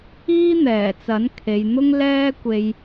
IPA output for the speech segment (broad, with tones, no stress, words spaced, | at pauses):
iː˥n̪ɛː˨˩t͡sɐ˨˥n kʰe˨jn̪ʊ˥ŋ lɛː˥kʷe˧j